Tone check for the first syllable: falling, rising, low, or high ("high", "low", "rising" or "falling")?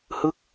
falling